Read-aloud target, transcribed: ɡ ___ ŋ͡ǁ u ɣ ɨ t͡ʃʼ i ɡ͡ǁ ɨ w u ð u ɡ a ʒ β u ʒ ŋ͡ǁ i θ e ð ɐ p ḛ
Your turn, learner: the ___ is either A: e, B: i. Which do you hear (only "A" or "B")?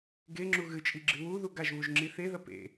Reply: A